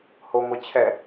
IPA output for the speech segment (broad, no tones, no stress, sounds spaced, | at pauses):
h o ŋʷ ɛ t͡ɕʰ ɛ